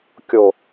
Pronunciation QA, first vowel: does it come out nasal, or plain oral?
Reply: oral